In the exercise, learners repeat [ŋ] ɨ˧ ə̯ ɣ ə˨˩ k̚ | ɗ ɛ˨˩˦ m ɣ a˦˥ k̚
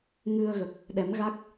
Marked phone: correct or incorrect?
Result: correct